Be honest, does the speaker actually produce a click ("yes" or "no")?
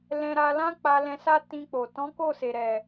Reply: no